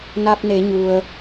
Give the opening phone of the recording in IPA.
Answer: n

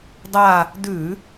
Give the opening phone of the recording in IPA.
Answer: dˤ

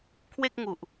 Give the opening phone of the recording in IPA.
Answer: kʰ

